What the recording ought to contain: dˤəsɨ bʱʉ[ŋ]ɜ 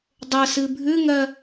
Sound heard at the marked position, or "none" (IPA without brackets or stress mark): ŋ